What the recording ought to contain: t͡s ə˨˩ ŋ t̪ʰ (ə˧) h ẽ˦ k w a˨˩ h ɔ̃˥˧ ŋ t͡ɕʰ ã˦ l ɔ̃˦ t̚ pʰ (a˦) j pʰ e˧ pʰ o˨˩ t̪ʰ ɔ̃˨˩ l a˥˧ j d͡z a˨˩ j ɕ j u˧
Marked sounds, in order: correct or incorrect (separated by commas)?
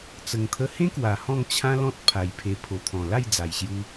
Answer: correct, incorrect